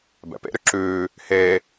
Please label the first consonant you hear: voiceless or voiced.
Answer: voiced